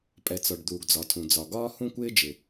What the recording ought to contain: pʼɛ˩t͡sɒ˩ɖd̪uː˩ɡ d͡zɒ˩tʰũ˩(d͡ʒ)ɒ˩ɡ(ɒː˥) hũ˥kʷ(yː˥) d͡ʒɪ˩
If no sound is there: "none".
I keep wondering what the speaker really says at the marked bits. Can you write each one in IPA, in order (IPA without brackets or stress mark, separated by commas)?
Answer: d͡z, ɒː˥, ɪː˥